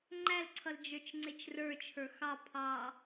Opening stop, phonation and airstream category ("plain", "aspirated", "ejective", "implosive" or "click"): click